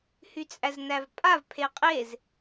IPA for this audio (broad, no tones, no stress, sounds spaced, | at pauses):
h y t͡sʼ æ z n æ v pʼ a v pʰ e qʼ e z